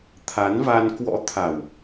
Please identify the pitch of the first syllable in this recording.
rising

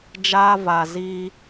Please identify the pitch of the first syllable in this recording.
high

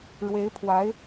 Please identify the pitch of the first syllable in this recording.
rising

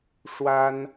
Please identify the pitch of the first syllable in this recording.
high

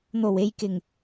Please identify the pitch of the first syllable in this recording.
low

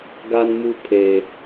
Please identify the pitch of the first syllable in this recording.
high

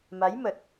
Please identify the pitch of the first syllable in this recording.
rising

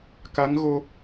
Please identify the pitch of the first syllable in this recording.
rising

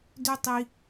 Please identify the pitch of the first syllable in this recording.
high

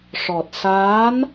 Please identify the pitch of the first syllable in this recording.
low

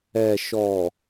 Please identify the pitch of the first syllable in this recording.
low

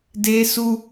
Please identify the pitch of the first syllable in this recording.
high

